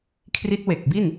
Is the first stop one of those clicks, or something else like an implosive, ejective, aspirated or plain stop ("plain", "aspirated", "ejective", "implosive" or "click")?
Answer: aspirated